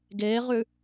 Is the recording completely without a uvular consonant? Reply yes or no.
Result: no